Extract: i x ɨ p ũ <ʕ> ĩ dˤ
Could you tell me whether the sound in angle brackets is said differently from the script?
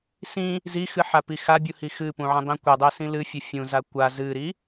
no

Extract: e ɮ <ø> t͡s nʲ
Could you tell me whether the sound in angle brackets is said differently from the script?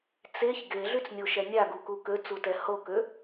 yes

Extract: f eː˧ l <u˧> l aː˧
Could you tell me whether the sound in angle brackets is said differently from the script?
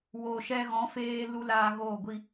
no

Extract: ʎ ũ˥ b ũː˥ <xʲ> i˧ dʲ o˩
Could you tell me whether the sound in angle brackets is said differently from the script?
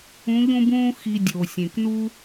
yes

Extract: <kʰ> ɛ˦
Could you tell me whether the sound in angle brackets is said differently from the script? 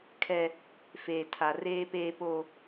no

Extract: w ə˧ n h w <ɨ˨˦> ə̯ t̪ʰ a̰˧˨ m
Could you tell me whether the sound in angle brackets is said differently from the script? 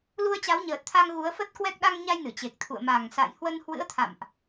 yes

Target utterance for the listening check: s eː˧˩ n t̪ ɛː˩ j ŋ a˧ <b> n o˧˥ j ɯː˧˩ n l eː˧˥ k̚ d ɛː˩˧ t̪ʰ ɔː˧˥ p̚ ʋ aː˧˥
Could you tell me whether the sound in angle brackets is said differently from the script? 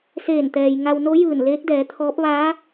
yes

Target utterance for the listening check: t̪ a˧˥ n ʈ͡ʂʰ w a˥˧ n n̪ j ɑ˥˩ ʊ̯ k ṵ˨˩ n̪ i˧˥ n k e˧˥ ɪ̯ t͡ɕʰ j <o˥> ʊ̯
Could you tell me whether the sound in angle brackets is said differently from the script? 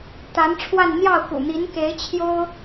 no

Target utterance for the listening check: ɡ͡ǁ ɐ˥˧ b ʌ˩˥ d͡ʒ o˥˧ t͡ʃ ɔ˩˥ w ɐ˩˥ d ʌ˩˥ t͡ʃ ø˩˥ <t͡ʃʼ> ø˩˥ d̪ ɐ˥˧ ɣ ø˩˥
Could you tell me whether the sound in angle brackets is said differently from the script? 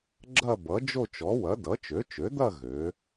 yes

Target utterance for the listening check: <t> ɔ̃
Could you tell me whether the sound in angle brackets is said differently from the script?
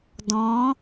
yes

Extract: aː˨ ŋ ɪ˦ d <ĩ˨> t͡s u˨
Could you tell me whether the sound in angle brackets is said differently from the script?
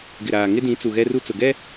yes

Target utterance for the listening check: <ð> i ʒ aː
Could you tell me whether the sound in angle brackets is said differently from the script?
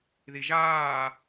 no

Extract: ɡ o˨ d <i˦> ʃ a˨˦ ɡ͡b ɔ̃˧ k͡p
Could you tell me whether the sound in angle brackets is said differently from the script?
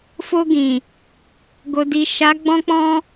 yes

